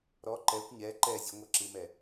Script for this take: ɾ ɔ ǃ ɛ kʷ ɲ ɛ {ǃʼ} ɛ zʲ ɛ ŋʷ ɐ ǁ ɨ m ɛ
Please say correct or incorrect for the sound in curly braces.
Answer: incorrect